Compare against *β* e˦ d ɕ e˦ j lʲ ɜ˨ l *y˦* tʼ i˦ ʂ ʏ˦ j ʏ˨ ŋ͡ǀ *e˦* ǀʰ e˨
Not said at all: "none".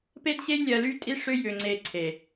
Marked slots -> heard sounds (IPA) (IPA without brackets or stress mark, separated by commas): p, y˦, e˨